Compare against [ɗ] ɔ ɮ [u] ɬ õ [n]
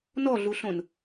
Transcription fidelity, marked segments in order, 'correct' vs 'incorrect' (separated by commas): incorrect, correct, correct